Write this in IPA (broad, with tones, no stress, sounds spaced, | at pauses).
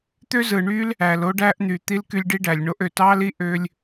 t̪ ø˥ z ɯ˨ ɳ y˥ l | æ˩ l o˦ ɖ æ˦ ʔ n̪ y˨ t̪ i˥ l k y˦ lʲ ɖ i˥ ɖ æ˨ lʲ ɳ o˦ ʔ ø˩ t ɑ˥ l i˥ ʔ ø˥ lʲ